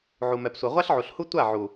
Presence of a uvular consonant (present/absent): present